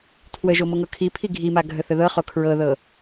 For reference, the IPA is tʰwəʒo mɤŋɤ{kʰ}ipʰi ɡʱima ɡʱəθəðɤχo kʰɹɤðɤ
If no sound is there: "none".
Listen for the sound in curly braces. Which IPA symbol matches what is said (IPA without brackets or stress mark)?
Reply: kʰ